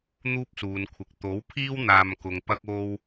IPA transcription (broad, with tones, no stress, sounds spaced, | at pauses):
n̪ uː˥ p̚ s uː˨ n kʷʰ ɪ˨ k̚ t̪ o˨˥ w pʰ iː˥ w n̪ aː˧ m k ʊ˨ ŋ p ɐ˥ k̚ o˥ w